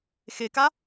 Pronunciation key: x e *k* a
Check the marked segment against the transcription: correct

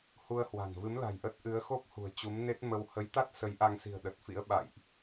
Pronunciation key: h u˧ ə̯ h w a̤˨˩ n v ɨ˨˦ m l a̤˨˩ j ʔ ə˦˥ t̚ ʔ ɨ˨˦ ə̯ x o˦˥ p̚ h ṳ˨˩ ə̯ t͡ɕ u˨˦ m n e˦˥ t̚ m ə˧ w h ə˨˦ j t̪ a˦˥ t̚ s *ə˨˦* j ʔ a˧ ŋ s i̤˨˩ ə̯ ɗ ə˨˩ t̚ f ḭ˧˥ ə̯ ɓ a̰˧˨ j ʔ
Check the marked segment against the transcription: correct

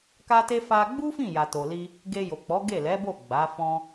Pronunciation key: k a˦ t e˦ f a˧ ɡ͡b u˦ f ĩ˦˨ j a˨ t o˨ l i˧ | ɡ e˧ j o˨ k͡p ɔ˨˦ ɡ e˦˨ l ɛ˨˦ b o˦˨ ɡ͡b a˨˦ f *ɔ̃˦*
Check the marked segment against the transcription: correct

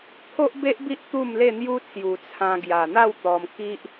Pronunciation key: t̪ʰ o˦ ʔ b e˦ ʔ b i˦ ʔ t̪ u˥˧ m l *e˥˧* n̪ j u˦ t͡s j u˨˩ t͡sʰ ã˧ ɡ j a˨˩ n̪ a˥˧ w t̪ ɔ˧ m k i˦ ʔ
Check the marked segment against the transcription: correct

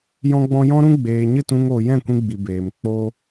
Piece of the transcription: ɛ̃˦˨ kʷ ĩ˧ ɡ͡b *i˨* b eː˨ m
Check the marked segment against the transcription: correct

